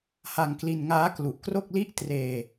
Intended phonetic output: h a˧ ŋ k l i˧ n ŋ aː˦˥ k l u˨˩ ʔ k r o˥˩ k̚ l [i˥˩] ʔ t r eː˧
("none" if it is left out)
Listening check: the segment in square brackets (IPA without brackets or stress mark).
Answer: i˥˩